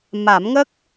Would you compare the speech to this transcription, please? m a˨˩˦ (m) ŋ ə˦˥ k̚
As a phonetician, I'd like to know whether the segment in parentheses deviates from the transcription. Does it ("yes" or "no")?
no